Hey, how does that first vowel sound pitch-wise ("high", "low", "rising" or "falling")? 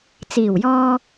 low